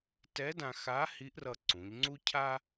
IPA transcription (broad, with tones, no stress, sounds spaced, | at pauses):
t ɛ˧˥ d ã˧ x a˧˥ h i˧˥ ʔ r ʌ˧ ǀ ũ˩˧ ʎ ŋ͡ǀ u˥ cʰ a˥